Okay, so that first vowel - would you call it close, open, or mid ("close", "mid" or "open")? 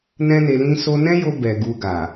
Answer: mid